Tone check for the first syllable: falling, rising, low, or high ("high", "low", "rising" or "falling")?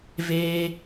high